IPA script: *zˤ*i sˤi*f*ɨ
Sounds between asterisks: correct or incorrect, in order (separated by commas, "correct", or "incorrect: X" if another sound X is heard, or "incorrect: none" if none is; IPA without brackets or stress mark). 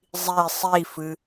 correct, correct